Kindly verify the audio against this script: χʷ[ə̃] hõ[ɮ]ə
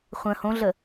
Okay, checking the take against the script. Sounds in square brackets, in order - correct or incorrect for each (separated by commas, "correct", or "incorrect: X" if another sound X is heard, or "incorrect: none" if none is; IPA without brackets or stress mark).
correct, correct